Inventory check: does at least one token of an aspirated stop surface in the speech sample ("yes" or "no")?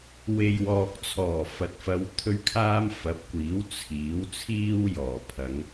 yes